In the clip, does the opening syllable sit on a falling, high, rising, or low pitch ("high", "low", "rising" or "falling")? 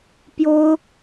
high